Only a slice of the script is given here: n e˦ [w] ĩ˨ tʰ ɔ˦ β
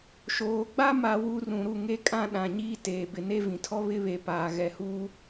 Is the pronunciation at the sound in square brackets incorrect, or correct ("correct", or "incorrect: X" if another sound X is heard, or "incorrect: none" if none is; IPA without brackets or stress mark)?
incorrect: v